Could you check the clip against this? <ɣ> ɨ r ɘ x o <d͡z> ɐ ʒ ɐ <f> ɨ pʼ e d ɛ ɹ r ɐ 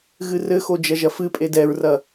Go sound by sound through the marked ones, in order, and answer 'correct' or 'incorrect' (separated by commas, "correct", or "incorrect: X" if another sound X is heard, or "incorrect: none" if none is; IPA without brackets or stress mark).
correct, incorrect: d͡ʒ, correct